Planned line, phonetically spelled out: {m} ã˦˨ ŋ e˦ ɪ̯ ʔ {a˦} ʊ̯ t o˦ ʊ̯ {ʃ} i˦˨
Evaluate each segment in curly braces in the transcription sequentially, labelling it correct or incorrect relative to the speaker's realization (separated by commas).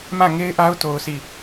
correct, correct, incorrect